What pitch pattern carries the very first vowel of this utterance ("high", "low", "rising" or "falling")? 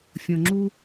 low